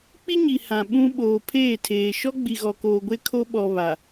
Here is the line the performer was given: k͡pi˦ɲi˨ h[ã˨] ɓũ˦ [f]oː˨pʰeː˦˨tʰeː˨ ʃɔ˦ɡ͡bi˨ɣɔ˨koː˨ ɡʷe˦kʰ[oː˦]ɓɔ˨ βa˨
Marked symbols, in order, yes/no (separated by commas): yes, no, no